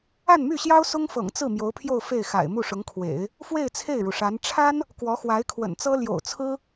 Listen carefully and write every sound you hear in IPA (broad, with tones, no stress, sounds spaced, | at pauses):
a˥˧ n m y˥˩ ɕ j ɑ˥ ʊ̯ s ʊ˥ ŋ f ɤ̰˨˩ ŋ t͡s ɹ̩˥˩ m j o˧˥ ʊ̯ pʰ j o˥˧ ʊ̯ f e˥˩ ɪ̯ x a̰˨˩ ɪ̯ m u˥˩ ʂ ʊ˧˥ ŋ kʰ w ḛ˨˩˦ ɪ̯ | f w e˥˧ ɪ̯ t͡sʰ e˥˩ ɪ̯ ɻ u˩ ʂ a˧˥ n ʈ͡ʂʰ a˥ n | k w ɔ˧˥ x w a˧˥ ɪ̯ kʰ w ə̰˨˩ n t͡s ɤ˥ l j o̰˨˩ ʊ̯ t͡sʰ ɹ̩˥